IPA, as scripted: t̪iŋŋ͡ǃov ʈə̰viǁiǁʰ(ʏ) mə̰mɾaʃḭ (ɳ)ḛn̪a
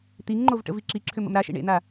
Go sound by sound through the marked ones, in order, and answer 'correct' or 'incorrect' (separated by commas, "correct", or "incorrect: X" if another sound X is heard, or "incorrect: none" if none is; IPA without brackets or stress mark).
correct, correct